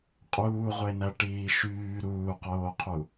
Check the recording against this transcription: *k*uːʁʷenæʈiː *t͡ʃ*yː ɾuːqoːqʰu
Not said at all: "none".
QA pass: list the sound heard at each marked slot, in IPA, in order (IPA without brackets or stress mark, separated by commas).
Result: qʼ, ʃ